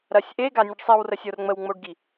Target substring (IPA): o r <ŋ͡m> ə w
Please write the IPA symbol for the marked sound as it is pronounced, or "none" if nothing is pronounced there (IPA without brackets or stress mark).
ŋ͡m